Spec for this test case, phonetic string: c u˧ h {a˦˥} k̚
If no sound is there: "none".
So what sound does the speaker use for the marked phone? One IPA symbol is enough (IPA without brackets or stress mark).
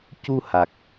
a˨˩